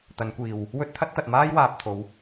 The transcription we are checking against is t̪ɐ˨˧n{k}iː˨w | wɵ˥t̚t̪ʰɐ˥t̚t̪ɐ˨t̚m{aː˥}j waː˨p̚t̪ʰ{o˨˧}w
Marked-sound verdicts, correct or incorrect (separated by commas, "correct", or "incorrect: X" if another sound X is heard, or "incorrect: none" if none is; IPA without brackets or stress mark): incorrect: kʷ, correct, correct